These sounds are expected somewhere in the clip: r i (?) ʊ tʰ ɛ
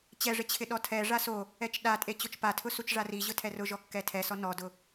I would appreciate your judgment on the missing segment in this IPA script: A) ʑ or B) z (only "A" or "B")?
A